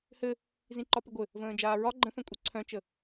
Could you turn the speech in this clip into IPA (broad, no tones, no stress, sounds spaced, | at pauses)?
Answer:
h ɘ | z ĩ ǃ ɒ p i ɡʷ ɘ | v ə̃ː d͡ʒ aː ɹ ɒ ɡ͡ǃ ə̃ θ œ̃ kʷʼ i ǀʰ œ̃ t͡ʃ ə